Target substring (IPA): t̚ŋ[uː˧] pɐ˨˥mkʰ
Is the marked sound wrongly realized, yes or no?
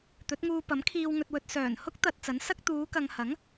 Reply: no